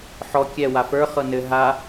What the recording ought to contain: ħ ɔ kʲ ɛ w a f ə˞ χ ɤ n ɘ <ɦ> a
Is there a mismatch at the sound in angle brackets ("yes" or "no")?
no